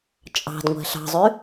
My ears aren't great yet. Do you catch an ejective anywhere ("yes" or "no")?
yes